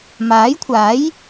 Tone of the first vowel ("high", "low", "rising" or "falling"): rising